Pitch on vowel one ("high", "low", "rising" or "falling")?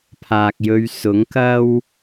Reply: low